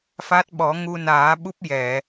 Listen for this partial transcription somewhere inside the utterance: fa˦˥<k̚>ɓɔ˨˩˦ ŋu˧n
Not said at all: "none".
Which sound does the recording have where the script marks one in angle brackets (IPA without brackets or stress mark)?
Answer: t̚